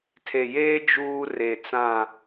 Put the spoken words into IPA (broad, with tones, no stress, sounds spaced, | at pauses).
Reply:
tʰ e˨ j eː˦ d͡ʒ uː˦ r e˨ t͡s ã˦˨